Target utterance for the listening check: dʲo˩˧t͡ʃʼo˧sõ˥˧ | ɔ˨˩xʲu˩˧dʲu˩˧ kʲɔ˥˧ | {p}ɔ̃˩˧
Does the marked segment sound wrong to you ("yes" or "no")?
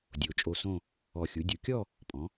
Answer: yes